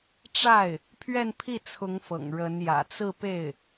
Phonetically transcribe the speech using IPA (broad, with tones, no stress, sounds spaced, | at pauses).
ʈ͡ʂ a˥˩ ɪ̯ | pʰ ɥ ɛ˥˧ n pʰ i˥˩ t͡sʰ ʊ˧˥ ŋ f ɤ̰˨˩ ŋ ɻ ə˧˥ n j ä̰˨˩ t͡s ɹ̩˥˧ p e˥˩ ɪ̯